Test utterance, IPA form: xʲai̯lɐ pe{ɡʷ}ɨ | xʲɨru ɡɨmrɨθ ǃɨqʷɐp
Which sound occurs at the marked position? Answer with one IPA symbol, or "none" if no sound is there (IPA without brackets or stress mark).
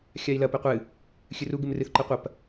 qʷ